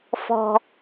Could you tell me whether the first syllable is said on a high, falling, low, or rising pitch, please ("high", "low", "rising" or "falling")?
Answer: low